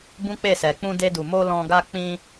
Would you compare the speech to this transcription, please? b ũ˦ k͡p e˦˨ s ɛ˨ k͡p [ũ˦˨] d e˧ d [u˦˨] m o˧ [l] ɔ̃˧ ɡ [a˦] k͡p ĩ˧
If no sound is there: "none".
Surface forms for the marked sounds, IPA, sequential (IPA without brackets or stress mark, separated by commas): ũ˧, u˨, l, a˦